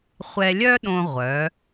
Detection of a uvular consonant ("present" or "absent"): present